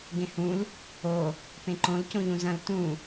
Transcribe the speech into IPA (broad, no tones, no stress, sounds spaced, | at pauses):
ɡ ẽ h ũ l | o | p ẽ ǃ õ l c õ ʎ ũ z ɐ̃ l t ũ